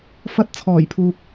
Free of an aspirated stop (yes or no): no